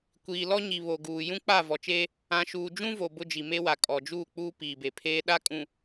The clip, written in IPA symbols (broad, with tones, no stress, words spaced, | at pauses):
kʷiː˨lɔ˦ɲi˨ βo˨ɡuː˨ jũ˦k͡pa˦˨ vɔ˨t͡ʃeː˦ | ã˨ʃuː˨ d͡ʒũ˦vo˨ bʊ˦d͡ʒi˨me˦wa˨ kʼɔ˨d͡ʒuː˦˨k͡puː˦ piː˨be˨pʰeː˦ ɗa˦kʼũ˨